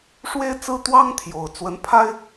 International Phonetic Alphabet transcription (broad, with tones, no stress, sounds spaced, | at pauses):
ʂ w e˦ ɪ̯ t͡s ɹ̩˦ t̪ w ɑ˦ ŋ t̪ʰ j o˨˩ ʊ̯ t͡s w ə˨˦ n pʰ a˦ ɪ̯